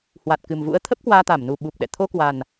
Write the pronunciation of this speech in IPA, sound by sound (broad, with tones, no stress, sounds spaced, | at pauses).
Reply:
h w a˨˩ t̚ k ɨ˨˩ m v ṵ˧˥ ə̯ t̪ʰ ə˦˥ p̚ k w aː˧ t̪ a˧˩ m n u˨˩ ɓ u˨˩ p̚ ɗ ɛ̰˧˨ t̪ʰ o˧ k w a˨˩ n